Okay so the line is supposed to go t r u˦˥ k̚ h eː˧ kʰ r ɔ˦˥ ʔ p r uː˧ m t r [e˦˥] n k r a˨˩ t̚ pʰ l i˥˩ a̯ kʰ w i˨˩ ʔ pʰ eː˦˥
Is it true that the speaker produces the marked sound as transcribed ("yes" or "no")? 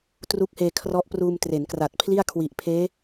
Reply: no